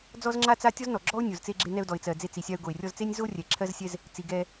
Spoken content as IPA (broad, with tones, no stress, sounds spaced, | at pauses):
d͡z ɔ˥ z ŋ͡ǁ a˥ t͡s a˥ tʲ ɔ˥ z n ɔ˩ ɡ͡ǁ ɔ˥ ʊ̯ nʲ o˩ z t͡s e˧ ɡ͡ǁ e˧ n ɛ˧ ʊ̯ d ɔ˩ ɪ̯ t͡s ɜ˩ d͡z e˧ t͡s i˩ sʲ a˧ ʊ̯ ɡ o˩ ɪ̯ rʲ ɔ˧ z t͡s e˥ nʲ z o˥ rʲ ɛ˩ ǁʰ ɜ˧ z sʲ ɛ˧ z | t͡s i˩ ɡ ɛ˧